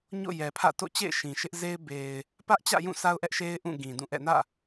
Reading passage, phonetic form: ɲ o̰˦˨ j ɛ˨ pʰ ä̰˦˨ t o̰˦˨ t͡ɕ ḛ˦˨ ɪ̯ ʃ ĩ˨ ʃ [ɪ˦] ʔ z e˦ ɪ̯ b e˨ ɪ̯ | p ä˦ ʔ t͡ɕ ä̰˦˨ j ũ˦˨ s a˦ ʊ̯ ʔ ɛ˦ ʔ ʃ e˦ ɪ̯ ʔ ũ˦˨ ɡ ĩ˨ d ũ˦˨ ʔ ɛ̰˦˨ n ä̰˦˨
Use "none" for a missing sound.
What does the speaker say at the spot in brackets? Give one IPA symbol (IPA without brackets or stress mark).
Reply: ɪ˦